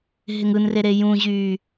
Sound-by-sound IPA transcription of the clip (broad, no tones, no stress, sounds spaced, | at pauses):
ɦ ɪ ŋ ɯ n r e ɾ e j ũ ʑ yː